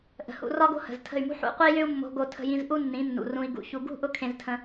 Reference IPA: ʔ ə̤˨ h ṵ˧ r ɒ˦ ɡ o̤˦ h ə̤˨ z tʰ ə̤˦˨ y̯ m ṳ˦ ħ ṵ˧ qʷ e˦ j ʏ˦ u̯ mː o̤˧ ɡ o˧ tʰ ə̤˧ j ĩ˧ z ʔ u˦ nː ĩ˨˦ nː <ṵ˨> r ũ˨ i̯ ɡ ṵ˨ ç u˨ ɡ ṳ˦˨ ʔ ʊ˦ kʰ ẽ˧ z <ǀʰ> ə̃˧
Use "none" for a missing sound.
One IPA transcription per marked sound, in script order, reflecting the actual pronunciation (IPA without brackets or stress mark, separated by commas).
ṵ˨, tʰ